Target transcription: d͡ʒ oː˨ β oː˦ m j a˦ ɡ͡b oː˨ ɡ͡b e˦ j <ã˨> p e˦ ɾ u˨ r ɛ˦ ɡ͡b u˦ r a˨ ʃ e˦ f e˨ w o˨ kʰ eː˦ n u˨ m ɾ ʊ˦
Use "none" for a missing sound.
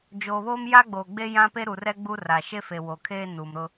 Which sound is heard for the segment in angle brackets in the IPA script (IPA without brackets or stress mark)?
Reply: ã˦